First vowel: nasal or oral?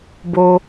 oral